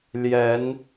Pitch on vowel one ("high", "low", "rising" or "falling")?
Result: rising